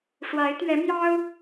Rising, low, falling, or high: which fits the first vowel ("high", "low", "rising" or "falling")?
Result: rising